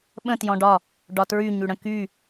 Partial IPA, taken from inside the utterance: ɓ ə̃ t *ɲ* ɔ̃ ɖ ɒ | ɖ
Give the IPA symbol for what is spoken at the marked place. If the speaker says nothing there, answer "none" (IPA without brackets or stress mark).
j